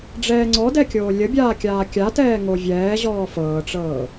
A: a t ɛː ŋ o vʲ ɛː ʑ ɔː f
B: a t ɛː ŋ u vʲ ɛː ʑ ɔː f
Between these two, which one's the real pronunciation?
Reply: A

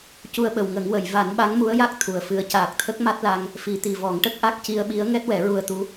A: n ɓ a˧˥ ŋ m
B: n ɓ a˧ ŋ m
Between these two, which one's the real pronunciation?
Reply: A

